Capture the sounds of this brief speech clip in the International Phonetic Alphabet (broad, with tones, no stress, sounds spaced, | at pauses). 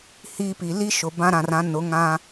h iː˦ p i˨ l i˦ ʃ ʊ˨ b ã˦ ɾ ã˨ r ã˨˦ n ʊ˨˦ ŋ ã˦